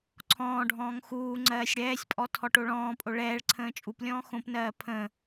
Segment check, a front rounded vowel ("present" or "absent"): absent